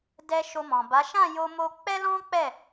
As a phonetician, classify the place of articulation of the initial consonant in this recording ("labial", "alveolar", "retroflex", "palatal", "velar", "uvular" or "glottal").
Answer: alveolar